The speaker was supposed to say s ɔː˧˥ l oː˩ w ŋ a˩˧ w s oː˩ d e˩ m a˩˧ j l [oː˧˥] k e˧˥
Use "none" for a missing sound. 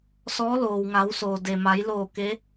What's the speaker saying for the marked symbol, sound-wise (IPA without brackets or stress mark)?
oː˧˩